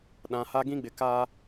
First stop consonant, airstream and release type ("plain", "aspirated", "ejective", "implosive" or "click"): implosive